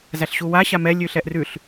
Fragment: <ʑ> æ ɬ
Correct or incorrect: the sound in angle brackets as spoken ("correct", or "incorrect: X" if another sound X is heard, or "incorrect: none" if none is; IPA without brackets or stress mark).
incorrect: z